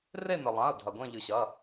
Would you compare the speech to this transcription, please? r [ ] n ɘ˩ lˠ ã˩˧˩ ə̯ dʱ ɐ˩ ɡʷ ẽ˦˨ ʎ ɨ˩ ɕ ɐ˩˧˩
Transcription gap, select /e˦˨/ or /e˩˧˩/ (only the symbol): e˦˨